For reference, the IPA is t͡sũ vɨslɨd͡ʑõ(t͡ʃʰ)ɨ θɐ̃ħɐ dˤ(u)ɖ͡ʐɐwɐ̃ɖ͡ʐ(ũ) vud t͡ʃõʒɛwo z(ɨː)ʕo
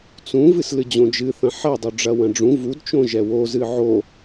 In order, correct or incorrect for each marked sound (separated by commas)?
incorrect, correct, correct, incorrect